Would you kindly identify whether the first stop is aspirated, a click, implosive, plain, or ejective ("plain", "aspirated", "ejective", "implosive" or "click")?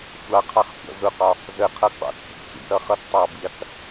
aspirated